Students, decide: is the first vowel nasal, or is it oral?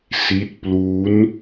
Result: oral